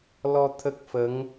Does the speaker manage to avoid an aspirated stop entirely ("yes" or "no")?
no